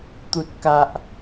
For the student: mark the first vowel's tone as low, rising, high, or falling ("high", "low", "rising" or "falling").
low